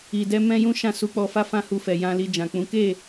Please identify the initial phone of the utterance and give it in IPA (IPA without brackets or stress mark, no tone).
i